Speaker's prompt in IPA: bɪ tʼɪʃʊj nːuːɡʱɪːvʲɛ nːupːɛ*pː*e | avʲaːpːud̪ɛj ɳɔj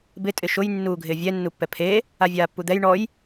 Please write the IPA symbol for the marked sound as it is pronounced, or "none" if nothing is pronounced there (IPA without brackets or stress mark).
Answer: pʰ